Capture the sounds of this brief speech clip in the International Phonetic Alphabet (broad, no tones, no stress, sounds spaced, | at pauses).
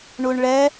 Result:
ɳ u ɳ ɭ ɛ